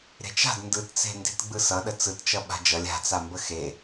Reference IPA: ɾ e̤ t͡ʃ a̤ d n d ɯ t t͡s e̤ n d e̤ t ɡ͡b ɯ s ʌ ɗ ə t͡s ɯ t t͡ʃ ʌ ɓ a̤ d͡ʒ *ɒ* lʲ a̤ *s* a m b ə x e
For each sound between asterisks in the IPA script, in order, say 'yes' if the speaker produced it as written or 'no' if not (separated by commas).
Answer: no, no